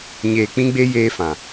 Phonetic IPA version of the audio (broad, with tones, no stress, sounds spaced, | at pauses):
ɲ eː˨ k͡p ĩ˦ ɡ͡b e˦ j eː˦ f ã˨